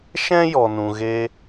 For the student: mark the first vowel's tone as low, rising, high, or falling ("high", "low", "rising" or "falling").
high